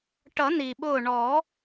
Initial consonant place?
retroflex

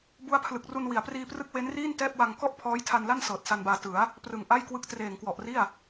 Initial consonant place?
labial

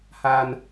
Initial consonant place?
glottal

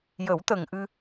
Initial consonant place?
palatal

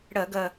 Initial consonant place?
retroflex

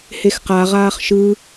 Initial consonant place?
glottal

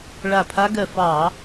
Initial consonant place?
retroflex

